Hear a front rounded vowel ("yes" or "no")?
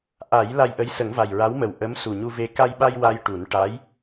no